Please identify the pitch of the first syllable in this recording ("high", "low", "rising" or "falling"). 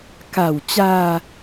low